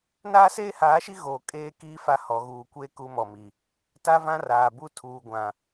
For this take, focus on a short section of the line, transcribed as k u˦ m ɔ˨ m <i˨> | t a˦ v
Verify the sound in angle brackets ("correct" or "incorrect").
correct